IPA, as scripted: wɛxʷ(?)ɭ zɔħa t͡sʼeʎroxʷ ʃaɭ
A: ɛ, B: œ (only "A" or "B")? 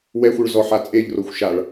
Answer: B